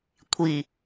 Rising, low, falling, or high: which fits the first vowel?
low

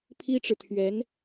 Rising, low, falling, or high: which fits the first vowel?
high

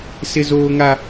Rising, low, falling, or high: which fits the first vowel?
high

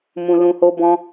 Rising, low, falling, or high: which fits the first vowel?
low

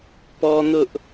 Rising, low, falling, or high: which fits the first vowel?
high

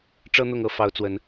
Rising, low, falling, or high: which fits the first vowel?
high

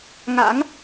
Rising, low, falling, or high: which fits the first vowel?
rising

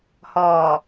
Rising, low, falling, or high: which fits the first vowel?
low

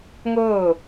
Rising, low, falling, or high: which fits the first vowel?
falling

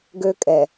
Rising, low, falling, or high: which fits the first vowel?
high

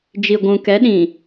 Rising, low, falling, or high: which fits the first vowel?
low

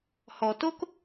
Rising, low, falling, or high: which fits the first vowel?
low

